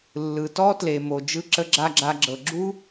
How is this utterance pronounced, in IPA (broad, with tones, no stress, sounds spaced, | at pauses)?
lː ɯ˩ t ɔ˥ t l e˩ m o˩ d͡ʒ ɯ˦ ǁ ə˦ ɡ͡ǁ a˦ ɡ͡ǁ a˨ ɡ͡ǁ ɤ˩ ɡ͡ǁ u˥